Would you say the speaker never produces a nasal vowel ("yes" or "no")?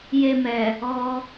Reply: yes